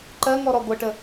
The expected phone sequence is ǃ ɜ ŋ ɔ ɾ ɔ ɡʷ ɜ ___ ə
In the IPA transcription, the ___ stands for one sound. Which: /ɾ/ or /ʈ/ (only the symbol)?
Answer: ʈ